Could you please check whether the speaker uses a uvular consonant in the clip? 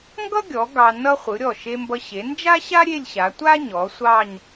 yes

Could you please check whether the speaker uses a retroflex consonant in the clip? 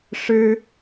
yes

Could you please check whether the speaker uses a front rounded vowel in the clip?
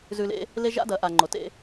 no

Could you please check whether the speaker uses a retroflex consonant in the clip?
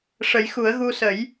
yes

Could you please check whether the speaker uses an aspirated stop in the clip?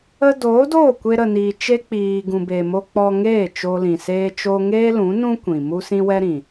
no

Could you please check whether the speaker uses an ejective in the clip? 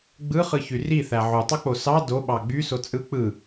yes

